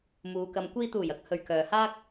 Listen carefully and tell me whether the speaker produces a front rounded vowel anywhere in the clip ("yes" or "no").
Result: yes